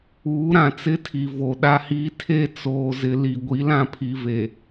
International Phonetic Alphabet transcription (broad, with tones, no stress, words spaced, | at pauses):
uː˨˦ɾã˨t͡sɪ˦tʰi˨ vo˨ɗa˦hiː˦ tʰe˦ t͡soː˨zɪ˨ li˨ ɡʷi˨˦lã˦pʰi˨ve˨